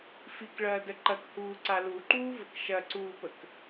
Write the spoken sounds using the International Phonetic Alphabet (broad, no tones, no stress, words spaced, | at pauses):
fikɭɐːdə ǃɐkhuːǀa luǃuːvək ʃɐǀuːpək